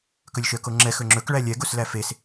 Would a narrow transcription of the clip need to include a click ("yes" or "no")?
yes